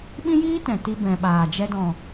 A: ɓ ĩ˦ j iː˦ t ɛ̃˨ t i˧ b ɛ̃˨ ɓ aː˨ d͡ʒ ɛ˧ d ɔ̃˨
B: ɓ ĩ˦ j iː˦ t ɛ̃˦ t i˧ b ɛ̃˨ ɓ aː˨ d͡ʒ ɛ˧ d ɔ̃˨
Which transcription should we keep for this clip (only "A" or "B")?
A